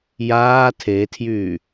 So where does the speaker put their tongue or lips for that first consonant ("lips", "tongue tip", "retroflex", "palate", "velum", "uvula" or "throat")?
palate